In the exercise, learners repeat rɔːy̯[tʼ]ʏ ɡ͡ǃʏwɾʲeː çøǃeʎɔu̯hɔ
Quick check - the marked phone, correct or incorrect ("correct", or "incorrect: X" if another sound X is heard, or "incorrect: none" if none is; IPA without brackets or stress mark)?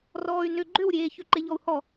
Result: incorrect: n